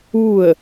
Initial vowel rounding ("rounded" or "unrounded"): rounded